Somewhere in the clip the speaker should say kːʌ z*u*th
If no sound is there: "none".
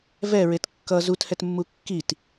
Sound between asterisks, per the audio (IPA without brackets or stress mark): u